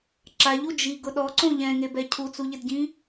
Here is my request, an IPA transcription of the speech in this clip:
ǁaʎu d͡ʒiɡʊ ɗɔǀõ ʎɛ̃ŋebɛ cʰut͡suʎɪdɟĩ

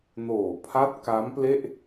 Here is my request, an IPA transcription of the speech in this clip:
noː˨˩pʰa˦˥t̚ ka˦˥mple˥˩ʔ

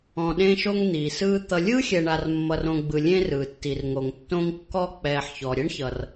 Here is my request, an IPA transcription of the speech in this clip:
ɔ̃˨ɗẽ˦ʃo˦ŋ n̪iː˩sɯː˦ t̪ʌ˦ lʲɯː˥xʲɛ˨ɳa˨r mːʌ˨rõ˨ɡ͡bɯ˩ lʲẽ˦rɯː˩tːi˩rŋo˩ŋ tːõ˦ŋ kːɔ˦k͡pɛː˩ħ çɔ˩ɾʲɛ˥ɳçʌ˩r

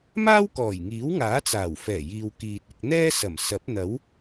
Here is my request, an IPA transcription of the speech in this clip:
maː˥wkɔː˨˩jŋiː˨˥wŋaː˨˥ t͡saː˨˩wfɛː˨˩jiː˨w kiː˨t̚ɪ˧k̚n̪ɛː˥ sɐ˨˩m sɐ˨˥p̚n̪ɐ˨˥w

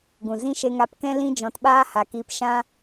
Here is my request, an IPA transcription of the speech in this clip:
ɡũ˨ zĩ˦ʃe˧ŋa˧pkɛ̃˦ lĩ˦d͡ʒɔ̃˨˦tɓaː˦ ha˨kiː˧p ʃã˧

